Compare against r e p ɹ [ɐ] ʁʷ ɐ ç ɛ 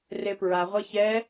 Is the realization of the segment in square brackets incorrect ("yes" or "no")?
yes